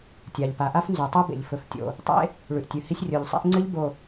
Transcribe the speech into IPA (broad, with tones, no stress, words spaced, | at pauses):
tʲa˨ʎpa˨ ʔa˦fnzʉ˨tˤɨ˦bḛ˨ʎ fɵ˨f tʲo̰˨ | tˤḛ˦ | ɭʉ˨ʔtʲʉ˨hi˦sʲ rʲo˨ʎsˤḛ˦ʔŋ͡ǀɨ˦ʎ bo˨